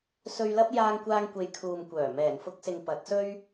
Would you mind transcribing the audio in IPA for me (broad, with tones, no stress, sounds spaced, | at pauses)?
s ɵ˧ ɥ l ɐ˥ p̚ j aː˧ ŋ kʷ aː˧ ŋ kʷ e˨ j kʰ uː˨ m kʷ œː˨˩ m ɛː˨˩ n f ʊ˧ k̚ s ɪ˨ ŋ p ɐ˨˥ t̚ s ɵ˥ ɥ